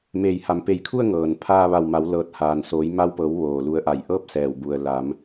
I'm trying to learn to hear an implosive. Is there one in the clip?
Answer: no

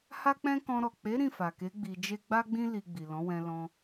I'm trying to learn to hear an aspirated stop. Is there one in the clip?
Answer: no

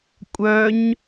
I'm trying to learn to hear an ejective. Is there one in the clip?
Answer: yes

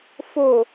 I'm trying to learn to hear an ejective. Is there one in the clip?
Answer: no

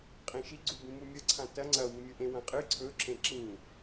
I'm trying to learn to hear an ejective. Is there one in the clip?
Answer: yes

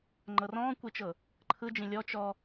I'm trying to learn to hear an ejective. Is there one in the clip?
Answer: no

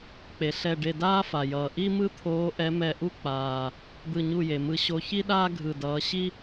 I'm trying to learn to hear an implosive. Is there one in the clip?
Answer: yes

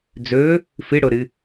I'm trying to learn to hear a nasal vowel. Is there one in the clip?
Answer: no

